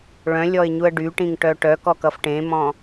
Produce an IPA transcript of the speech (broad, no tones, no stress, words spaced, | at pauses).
ɭœ̃lʲɔɪ̯ɲuə̯ ɖyʈĩŋʈœ ʈœkɔkʌf ʈẽmɔ̃